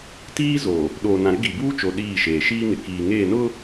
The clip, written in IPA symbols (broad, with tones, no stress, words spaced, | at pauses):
tiː˦zo˨ | ɗoː˨nã˨ɾɪ˦ ɡi˨buː˦t͡ʃo˨ ɗiː˦˨ʃeː˨ ʃiː˦ŋɪ˨kiː˨ŋeː˦˨ nʊ˦